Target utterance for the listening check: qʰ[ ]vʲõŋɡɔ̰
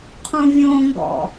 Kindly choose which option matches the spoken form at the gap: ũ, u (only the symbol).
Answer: ũ